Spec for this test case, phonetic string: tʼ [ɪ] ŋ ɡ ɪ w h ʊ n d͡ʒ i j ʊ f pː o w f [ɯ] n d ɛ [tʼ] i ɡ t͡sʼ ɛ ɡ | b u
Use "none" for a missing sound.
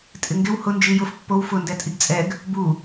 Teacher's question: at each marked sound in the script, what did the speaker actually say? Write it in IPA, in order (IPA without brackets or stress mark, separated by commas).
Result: ɪ, ʊ, tʼ